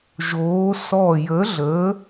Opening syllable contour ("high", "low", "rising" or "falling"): rising